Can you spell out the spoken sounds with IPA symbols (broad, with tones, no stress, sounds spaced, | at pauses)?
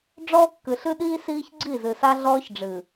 ɖ͡ʐ ɔː˦ kː ɨ˨ ɬ ɨ˦ ɗ iː˦ s iː˦ ç ɡ͡ǀ i˦˨ z ɨ˨ s a˦ ɮ ɔː˦ ç ɖ͡ʐ ɨ˨